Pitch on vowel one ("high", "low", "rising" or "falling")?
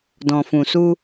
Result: low